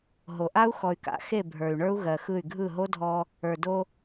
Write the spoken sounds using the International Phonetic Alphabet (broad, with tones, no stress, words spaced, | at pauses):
ɦo˨ʔa˦u̯ xɔ˨y̯ka̰˨˦ xe˦˨ bʱə˞˨y̯ɳə˞˦u̯ ɣɜ˨ xɯ˦˨y̯ ɡʱɯ˦˨ɦo˦dʱɔ˦ | ə˞˨do˦